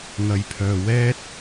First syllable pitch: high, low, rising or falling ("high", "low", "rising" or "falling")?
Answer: low